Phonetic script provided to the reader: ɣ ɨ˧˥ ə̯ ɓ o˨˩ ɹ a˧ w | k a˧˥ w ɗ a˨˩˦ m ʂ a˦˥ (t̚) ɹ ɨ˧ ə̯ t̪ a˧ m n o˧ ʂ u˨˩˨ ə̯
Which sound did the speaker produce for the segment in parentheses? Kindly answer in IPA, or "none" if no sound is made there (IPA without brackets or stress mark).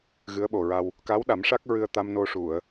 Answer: k̚